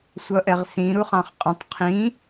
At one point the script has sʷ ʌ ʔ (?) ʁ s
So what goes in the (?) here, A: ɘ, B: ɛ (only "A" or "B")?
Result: B